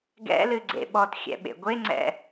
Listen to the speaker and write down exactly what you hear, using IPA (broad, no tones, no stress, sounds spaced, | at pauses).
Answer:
ɡ ɛ̰ l ɨ ɡ͡ǀ ḛ ɓ ɔ t xʲ ɛ̰ ɓ ḛ ɡʷ e ŋ͡ǀ ɛ̰